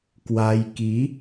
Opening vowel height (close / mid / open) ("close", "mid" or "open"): open